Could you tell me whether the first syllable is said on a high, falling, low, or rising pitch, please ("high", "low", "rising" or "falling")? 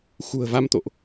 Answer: low